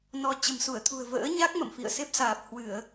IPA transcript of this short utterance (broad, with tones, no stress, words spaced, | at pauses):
nɔ˧ t͡ɕə̤˨˩msu˧˩ə̯t̪ʰṳ˨˩ə̯ və̰ː˧˥ɲa˦˥k̚ mə̰˧˨mfḭ˧˨ə̯se˦˥p̚saː˨˩p̚ hwɨ˧˩˨ə̯